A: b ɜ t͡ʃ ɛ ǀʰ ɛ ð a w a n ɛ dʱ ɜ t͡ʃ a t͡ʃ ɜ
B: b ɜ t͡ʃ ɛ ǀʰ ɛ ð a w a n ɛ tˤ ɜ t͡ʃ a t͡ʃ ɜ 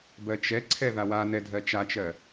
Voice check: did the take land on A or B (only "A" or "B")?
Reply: A